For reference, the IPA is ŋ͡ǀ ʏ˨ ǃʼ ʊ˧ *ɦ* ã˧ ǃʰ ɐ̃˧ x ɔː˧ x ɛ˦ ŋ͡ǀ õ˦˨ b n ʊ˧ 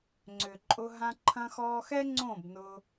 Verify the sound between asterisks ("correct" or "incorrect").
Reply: correct